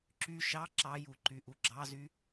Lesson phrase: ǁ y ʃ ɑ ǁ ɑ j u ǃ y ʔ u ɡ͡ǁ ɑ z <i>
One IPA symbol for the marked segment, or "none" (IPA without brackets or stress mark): y